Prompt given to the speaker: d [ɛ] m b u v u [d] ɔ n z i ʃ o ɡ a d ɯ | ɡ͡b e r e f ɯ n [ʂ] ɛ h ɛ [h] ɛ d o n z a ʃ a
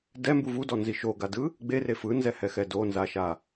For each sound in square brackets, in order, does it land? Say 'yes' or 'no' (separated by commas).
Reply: yes, yes, no, no